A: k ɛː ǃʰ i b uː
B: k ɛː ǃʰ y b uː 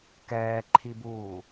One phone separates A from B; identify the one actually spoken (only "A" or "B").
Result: A